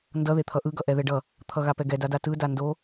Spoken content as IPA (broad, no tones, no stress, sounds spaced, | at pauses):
n d ʌ ð e t̪ʰ ʌ ʔ ɯ ɡ ʌ ʔ ɛ ð ɛ ɖ ʌ | t̪ʰ ʌ ɣ a p ɛ ɡ ɛ d a d a t ɯ d a n d o